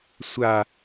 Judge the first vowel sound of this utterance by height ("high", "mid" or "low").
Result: low